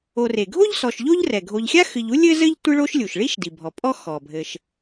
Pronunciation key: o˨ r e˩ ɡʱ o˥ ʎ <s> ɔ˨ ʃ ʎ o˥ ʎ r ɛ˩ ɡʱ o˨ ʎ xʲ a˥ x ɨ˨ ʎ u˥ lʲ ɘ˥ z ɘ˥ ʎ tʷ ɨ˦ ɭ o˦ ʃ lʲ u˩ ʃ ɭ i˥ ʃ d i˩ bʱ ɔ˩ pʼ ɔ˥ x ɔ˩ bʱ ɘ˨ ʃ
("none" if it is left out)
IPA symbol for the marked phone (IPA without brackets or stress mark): s